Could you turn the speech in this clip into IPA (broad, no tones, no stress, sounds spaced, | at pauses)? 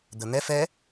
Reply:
d̪ ə n̪ ɛ f ɛ